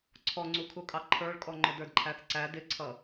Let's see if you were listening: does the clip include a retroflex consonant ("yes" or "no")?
yes